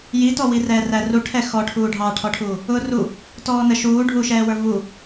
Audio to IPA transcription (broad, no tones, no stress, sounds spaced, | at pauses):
j i t ɔ w i r ɛː r æ r u ʈʰ ɛ x ɔ ʈʰ uː ɖʱ ɑ ʈʰ ɔ ʈʰ uː | ʊː r u | t ɔː n ə ʃ uː ɖʱ u ʃ ɛː w ə˞ v u